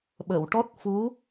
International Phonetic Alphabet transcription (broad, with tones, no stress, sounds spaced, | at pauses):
ɓ ə˨˩˨ w ʈ ɔ˦˥ t̚ f u˧˥